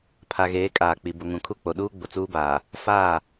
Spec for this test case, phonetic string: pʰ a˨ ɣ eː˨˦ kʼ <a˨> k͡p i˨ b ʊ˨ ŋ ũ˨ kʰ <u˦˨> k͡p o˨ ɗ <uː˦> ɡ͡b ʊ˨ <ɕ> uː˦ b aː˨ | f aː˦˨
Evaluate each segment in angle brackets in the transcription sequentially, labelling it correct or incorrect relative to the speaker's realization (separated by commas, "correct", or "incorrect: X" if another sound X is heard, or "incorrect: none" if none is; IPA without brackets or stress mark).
incorrect: aː˨, correct, correct, incorrect: t͡s